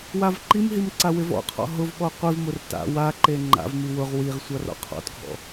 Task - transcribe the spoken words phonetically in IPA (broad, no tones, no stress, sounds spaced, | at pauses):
w a v ǃ i m ɦ i m ǀ a w ɪ v ɔ̰ qʰ ɔ̰ ɦ ʊ v ɓ ɔ qʷ i v m ʊ r t a̰ w a ǃ e ŋ͡ǃ a̰ v m i w ʊ ʁ w i ʁ sʷ a r ɔ̰ qʰ ɔ̰ t ɡʱ ɔ̰